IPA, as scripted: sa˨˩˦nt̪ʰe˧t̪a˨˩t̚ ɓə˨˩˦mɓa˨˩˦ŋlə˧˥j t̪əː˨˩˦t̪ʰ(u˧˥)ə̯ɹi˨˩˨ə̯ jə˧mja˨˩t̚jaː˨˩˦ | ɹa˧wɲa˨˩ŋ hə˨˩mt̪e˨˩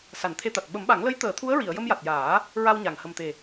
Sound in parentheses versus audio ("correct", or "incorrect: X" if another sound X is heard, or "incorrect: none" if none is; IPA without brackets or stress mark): correct